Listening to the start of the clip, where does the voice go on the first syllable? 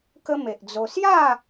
high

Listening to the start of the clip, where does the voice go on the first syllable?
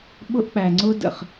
high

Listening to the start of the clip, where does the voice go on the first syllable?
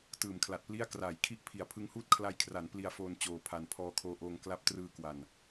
low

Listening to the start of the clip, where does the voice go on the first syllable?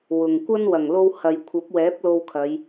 low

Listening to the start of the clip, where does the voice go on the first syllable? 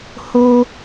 high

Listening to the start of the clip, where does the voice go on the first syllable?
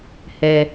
low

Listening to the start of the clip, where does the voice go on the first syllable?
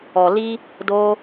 low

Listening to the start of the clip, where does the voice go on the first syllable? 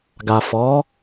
low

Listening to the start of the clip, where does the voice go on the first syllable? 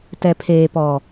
low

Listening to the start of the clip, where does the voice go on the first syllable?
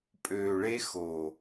low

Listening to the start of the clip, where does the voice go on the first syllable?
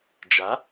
rising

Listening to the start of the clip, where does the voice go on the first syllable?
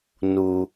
low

